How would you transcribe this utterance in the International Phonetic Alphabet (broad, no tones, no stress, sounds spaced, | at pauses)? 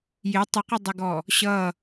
j ɪ tˤ ə q ə dˤ ɪ ɡ ɔ | ɕ ʌ